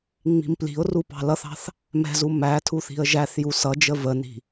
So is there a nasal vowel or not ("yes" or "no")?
no